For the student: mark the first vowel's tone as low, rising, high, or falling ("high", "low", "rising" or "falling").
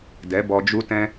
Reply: rising